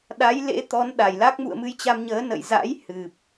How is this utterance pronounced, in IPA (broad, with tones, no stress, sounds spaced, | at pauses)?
ɗ a˨˦ j l ḛ˧˥ t̪ ɔ˨˦ n ɗ a˧˩ j l a˦˥ k̚ m ṵ˧˨ ə̯ m ɨ˧ j t͡ɕ a˧ m ɲ əː˨˦ n ə̰˧˨ j z a̰˧˥ j h ɨ˨˩ p̚